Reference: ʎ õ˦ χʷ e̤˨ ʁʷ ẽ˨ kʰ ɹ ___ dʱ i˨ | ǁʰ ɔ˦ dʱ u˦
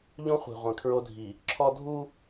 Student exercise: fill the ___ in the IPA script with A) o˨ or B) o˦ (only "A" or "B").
B